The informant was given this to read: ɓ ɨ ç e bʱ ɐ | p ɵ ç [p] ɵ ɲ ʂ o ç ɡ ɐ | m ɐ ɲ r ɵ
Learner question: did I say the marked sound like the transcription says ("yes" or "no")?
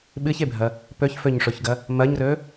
no